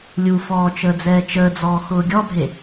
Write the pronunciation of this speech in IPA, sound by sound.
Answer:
lʲufɔː t͡ʃəːd͡zɛːt͡ʃəːd͡zɔː xʊːɡʲɔbʱe

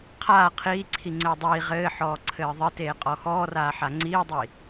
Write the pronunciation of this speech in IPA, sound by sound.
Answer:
qʰaː qʰiːǀʰi ŋ͡ǀɘːdˤiː ʁɘːħɔː ǀʰɘːðˤɘteː qʼɔxɔːraːħa ŋ͡ǀiːdˤi

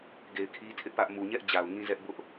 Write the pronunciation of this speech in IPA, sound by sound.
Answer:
ɡe˨ɪ̯kʰi˦tʰɪ˦ʔpä˦ʔ mu˨ɲɛ˦ʔ d͡ʑa˨ʊ̯ŋĩ˦zɛ˦ʔ bʊ˦ʔ

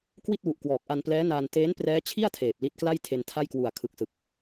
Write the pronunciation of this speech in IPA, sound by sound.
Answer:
kwi˥˩t̚wu˨˩ʔkwɔː˨˩k̚ʔa˧n plɛː˦˥naː˧n teː˦˥nprɛː˦˥t͡ɕʰi˥˩a̯ tʰeː˨˩p̚li˦˥t̚kla˥˩j tʰe˧ntʰa˥˩jkwu˨˩a̯ kʰɯ˨˩k̚sɯ˨˩k̚

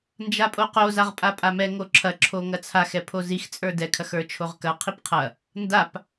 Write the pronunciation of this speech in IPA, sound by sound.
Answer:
nd͡ʒapʼoqo zaʁpʼapʼamɛ ŋoǁʰɐ ǁʰoŋɐt͡sʰax ɛpʰozix t͡sʼə˞dɛ kʰɐxə˞t͡ʃʰoʁkɐ qʰipqʰɐ | ndap

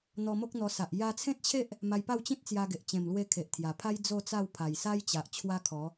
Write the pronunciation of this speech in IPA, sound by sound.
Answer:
n̪ɔ˧mo˦k̚ n̪ɔ˧sa˨ʔ ja˧t͡sʰẽ˦t̚t͡ɕʰe˦ʔ | ma˧jpa˥˧w t͡ɕĩ˦t̚t͡sja˧ɡe˨ʔ t͡ɕẽ˨˩mlwe˧ kʰe˨ʔt̪ʰja˨˩pʰa˦j d͡zo˥˧t͡sa˥˧w pʰa˨˩jsa˦jt͡ɕa˨ʔ t͡ɕʰwa˦kʰɔ˨˦

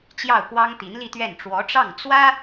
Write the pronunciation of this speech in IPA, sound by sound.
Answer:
t͡ɕjɑ˥˩ʊ̯kwɑ˥ŋ t̪i˧˥nli˥˧t̪ɥɛ˥˩n ʈ͡ʂwɔ˧˥ʈ͡ʂɑ˥˩ŋ t͡swä˥

